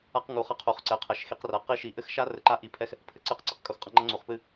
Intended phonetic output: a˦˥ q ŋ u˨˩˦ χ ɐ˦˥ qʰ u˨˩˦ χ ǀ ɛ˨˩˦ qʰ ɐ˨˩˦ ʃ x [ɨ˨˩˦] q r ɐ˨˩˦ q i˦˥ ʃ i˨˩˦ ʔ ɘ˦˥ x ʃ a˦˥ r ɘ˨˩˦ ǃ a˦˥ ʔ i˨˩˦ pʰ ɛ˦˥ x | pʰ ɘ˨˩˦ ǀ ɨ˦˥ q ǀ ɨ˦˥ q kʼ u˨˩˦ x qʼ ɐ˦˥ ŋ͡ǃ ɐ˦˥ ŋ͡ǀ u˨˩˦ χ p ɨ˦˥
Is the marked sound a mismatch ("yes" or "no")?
yes